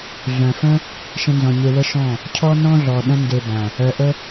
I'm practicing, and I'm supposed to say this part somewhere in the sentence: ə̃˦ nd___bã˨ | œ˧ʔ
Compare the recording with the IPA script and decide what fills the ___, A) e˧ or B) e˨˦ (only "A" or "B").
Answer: A